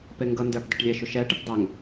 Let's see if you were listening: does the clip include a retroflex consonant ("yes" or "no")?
yes